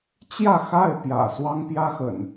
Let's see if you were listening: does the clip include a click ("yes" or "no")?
no